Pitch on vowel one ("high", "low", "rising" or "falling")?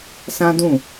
high